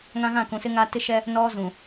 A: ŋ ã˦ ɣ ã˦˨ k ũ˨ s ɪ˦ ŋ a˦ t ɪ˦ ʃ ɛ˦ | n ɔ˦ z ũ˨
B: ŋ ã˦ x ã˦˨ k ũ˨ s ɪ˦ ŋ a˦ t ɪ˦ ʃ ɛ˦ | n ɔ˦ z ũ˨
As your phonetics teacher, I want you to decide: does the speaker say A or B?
A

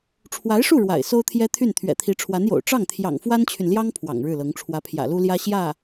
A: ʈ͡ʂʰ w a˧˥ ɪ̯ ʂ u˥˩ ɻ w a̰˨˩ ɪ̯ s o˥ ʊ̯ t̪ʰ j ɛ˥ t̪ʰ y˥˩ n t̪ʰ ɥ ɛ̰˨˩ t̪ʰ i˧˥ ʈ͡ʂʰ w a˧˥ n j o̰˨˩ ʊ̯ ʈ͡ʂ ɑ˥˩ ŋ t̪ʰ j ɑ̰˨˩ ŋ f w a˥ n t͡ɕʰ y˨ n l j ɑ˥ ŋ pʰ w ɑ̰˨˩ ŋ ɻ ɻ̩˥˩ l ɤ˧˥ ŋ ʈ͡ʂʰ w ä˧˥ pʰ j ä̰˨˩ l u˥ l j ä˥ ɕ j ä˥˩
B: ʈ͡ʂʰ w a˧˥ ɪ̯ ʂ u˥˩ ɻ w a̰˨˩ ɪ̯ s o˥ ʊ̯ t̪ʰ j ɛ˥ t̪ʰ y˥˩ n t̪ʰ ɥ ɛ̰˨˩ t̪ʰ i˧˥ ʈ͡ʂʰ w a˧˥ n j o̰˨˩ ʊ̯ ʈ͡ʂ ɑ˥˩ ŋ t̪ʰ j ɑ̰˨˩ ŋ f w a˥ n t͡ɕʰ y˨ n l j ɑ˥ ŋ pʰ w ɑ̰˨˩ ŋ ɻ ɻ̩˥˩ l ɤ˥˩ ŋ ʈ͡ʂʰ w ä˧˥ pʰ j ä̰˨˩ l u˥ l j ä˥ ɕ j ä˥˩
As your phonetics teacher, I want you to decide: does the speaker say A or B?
A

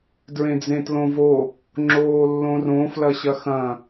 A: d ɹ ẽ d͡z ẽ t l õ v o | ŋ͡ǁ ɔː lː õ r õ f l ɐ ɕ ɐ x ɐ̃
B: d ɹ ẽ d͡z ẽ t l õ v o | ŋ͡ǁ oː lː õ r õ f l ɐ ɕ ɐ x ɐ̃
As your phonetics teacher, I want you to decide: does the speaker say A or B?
B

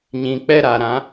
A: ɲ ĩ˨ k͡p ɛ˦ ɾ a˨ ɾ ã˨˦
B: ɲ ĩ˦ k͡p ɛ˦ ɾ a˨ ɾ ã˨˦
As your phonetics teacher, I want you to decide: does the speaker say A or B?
A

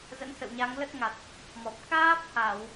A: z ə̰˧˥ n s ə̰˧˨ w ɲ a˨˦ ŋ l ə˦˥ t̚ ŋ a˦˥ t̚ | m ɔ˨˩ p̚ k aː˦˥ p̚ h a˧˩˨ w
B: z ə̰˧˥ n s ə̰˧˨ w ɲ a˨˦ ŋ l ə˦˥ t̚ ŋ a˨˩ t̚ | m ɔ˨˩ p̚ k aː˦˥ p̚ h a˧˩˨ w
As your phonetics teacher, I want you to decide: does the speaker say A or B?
B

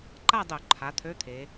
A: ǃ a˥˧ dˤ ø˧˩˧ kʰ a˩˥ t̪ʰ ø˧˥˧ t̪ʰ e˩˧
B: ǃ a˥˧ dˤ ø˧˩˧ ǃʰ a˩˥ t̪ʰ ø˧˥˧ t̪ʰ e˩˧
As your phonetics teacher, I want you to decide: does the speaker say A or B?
B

